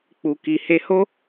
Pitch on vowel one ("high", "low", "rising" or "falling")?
low